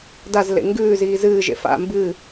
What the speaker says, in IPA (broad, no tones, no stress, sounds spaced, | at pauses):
d a z l ḛ ŋ ɡ ʉː z iː z ɨː ʒ ḛ f a̰ m b ɨː